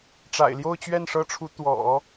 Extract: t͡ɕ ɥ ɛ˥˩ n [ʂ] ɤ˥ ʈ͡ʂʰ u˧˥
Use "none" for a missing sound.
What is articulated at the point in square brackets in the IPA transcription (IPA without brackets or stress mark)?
ʂ